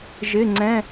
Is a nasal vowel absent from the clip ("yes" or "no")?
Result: no